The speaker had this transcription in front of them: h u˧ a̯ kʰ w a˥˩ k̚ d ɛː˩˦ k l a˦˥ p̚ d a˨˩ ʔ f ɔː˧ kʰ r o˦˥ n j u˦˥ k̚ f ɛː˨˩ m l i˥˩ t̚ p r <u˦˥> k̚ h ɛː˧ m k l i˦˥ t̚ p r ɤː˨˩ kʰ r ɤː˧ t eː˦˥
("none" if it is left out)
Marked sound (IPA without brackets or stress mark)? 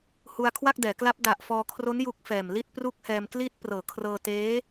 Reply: u˦˥